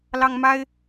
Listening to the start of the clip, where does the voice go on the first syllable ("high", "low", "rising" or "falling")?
high